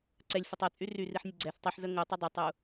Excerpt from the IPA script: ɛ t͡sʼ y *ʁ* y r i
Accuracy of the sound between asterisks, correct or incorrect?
incorrect: r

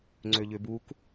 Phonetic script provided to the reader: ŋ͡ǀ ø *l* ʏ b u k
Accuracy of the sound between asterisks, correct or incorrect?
incorrect: ʎ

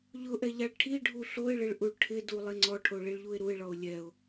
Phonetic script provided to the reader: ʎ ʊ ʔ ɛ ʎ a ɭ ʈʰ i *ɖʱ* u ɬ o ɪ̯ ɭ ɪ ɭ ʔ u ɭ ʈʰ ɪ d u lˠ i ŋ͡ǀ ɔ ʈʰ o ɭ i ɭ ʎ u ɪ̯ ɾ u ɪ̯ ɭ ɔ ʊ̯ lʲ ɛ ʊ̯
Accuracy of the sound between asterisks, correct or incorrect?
correct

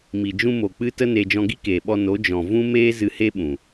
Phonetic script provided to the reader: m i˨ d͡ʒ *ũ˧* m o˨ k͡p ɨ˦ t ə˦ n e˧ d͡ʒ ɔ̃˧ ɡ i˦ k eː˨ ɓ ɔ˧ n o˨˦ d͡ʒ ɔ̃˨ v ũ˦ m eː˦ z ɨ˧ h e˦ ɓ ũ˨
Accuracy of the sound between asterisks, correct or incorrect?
correct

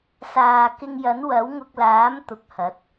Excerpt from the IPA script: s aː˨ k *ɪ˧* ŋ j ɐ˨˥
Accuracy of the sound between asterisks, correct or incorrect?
correct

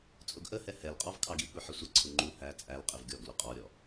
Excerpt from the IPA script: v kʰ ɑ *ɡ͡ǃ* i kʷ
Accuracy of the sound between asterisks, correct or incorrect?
incorrect: ɡ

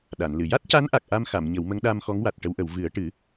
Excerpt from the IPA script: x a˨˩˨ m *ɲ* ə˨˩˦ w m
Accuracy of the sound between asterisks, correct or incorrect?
correct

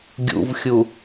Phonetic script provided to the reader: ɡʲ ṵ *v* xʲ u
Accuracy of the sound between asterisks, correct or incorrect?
correct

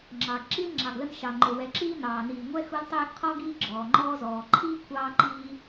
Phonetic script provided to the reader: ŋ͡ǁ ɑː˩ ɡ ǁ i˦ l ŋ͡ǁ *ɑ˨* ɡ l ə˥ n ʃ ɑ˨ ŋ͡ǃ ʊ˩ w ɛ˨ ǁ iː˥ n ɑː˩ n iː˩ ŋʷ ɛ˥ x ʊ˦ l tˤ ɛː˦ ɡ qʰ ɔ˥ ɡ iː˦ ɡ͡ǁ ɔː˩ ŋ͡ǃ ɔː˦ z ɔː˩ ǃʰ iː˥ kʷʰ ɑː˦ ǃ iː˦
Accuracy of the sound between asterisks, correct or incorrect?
correct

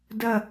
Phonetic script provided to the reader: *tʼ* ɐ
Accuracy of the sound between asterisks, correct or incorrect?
incorrect: d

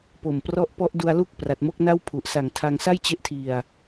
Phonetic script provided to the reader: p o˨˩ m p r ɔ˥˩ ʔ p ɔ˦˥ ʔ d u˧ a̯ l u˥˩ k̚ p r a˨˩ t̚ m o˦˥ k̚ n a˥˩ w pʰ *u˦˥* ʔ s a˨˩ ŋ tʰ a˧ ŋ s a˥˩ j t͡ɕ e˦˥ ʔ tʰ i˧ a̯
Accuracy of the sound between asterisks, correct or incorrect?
incorrect: u˨˩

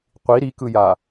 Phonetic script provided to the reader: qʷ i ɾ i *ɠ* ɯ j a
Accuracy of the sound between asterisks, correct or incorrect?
incorrect: k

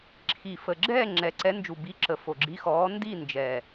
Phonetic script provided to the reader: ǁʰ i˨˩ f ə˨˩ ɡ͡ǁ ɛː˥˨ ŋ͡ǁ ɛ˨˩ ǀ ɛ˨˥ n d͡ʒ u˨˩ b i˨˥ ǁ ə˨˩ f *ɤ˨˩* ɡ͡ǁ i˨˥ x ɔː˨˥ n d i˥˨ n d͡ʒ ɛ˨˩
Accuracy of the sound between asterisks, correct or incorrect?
incorrect: o˨˩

